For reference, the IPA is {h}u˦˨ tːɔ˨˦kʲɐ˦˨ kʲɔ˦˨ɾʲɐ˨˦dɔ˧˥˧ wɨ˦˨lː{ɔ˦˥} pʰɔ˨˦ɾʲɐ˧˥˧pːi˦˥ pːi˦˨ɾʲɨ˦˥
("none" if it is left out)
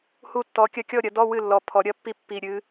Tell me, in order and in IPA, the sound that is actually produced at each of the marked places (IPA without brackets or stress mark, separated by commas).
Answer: h, ɔ˨˦